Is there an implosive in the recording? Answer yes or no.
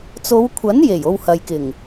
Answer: no